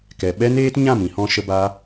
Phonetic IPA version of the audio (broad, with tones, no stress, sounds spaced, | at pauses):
k ɛ˨ ɓ ɛ˦ n eː˦ t ɲ ã˦˨ m ĩ˨ h ɔ̃˧ ʃ ə˧ b a˦